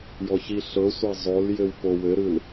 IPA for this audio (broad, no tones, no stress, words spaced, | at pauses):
jɔçiɬɤsʷa zˤol jɘwpowɘɾɯl